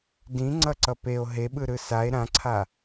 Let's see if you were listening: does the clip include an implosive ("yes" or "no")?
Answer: yes